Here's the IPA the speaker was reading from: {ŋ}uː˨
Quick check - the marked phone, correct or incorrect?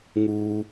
correct